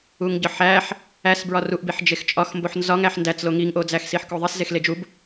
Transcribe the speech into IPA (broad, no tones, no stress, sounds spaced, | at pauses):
u ŋ ɟ ɒ ħ æ ħ | æ s b ɹ ɒ r u ʔ b i ħ d͡ʒ e x t͡ʃʼ ɒ x m b o ħ n z ɒ ŋ æ ħ n d æ t͡s l o ŋ i ŋ ʔ o d͡z æ x s i ħ k o ðˤ i s z e x l e d͡ʒ u b